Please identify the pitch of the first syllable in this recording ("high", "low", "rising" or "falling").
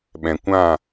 low